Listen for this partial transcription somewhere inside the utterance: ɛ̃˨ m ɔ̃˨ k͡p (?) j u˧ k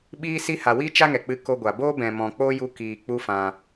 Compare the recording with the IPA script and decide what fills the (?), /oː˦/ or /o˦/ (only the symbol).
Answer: o˦